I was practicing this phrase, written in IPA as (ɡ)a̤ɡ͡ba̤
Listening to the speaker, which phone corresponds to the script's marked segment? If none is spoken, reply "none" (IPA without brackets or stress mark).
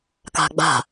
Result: k